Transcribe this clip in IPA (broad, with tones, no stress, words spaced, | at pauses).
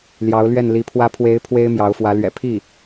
ljɑ˧˥ʊ̯lɥɛ˥˩nli˧˥pʰwä˥ pʰwe˧˥ɪ̯ pʰwe˥ɪ̯mjɑ˧˥ʊ̯fwä˧˥ lɥɛ̰˨˩pʰi˥˩